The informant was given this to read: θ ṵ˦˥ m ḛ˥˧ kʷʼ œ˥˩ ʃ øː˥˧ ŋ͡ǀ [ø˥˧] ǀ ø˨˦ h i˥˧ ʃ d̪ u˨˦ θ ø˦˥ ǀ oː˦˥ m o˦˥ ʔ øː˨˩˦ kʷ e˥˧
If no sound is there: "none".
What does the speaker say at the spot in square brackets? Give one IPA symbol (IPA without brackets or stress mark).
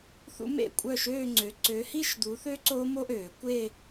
ø˨˦